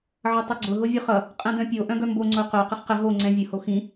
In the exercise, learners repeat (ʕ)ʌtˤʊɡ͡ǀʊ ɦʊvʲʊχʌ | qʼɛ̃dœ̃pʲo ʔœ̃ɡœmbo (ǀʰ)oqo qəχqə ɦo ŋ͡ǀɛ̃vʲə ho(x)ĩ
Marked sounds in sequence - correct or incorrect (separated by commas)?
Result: correct, incorrect, correct